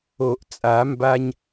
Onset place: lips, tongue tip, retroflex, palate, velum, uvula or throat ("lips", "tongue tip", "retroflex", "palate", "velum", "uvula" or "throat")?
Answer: throat